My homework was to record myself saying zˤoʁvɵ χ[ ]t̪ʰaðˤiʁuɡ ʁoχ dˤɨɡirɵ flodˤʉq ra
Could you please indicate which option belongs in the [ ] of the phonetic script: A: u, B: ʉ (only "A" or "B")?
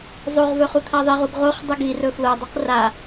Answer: A